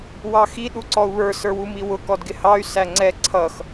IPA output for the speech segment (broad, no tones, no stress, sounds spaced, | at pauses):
w ɑ x i ɗ u ǀ ɔ u̯ β ə˞ s ə˞ w u m i w ʊ k ɔ d ɡ ɪ h ɑ y̯ s æ ŋ͡ǀ ɛ ǀʰ ʌ x